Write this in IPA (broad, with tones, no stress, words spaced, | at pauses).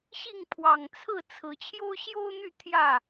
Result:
ɕi˥˨ŋpʰwɑ˨˩ŋt͡sʰɹ̩˥˨ t͡sʰɹ̩˨˦ t͡ɕʰjo˦ʊ̯ɕjo˦ʊ̯n̪y˥˨ t̪ʰjä˥˨